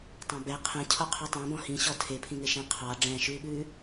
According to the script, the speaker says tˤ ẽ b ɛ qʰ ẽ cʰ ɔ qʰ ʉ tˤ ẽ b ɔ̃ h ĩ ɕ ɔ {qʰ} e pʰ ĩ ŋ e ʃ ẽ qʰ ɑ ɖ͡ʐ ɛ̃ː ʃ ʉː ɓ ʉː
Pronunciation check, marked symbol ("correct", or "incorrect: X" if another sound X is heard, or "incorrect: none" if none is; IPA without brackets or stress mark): incorrect: tʰ